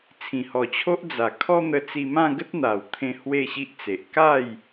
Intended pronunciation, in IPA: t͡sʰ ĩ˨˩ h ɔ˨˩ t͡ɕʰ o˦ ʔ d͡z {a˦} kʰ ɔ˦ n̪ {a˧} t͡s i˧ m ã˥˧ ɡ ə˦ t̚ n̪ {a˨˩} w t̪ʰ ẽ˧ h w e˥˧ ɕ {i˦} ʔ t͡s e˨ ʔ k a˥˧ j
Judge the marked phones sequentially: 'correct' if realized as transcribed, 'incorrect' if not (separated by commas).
incorrect, incorrect, correct, correct